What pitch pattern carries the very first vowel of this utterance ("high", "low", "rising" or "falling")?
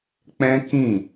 high